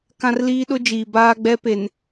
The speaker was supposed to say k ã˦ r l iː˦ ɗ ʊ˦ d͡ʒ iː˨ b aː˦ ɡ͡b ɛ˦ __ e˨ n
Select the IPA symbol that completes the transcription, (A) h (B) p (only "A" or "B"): B